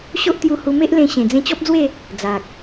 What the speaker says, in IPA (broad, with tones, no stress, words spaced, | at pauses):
ɕo˦ʔt̪ju˧hu˧ me˦ʔlẽ˧ ɕẽ˨˩d͡zẽ˧t͡ɕɔ˦p̚d͡zwe˥˧ | d͡za˨k̚